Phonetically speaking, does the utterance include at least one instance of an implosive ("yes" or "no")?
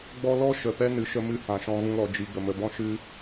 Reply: no